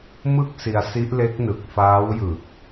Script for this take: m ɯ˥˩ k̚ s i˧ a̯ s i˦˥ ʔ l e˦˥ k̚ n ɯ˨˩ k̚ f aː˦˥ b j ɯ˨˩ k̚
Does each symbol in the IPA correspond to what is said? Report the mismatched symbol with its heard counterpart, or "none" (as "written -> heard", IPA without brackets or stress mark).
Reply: b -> w